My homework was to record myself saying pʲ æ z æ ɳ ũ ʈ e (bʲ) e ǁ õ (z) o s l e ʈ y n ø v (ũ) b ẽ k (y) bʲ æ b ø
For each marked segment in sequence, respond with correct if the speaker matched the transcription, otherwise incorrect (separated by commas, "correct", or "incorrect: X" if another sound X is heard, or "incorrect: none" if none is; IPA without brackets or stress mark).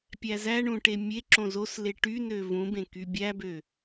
incorrect: mʲ, correct, correct, correct